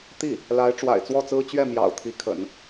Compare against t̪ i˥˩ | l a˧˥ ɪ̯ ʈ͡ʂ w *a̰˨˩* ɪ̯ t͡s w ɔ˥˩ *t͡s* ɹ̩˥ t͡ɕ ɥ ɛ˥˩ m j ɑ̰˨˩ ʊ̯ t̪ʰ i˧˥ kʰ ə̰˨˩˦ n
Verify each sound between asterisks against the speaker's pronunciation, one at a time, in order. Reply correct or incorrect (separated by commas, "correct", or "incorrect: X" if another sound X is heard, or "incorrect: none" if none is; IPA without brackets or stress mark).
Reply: correct, correct